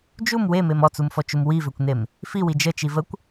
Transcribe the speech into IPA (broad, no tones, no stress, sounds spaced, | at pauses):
d͡ʒ u m w e m e m ɔ t͡s u m f ɔ t͡ʃ u m w i v ø kʷ n e m | f i w i d͡ʒ ə t͡ʃ i v ə kʷ